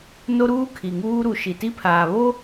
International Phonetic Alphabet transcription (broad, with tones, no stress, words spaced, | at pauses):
no˦ɾuː˦ kʰi˨ ŋuː˦ɾu˨ ʃi˨ti˦pʰaː˨ βo˦